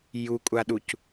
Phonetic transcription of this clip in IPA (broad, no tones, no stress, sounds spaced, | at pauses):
j u kʷʼ a ɗ u c